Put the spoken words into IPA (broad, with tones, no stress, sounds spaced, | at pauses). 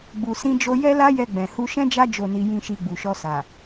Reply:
ɡ͡b u˨ s ĩ˧ d͡ʒ o˧ j ɛ˦ l a˦ j ɛ˧ ɡ͡b ɛ̃˨ h u˧ ʃ ɛ̃˦ d͡ʒ a˦ d͡ʒ o˦˨ n i˧ j ĩ˦ ʃ i˧ ɡ͡b u˨ ʃ ɔ˧ s a˨